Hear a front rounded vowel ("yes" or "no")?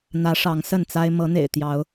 no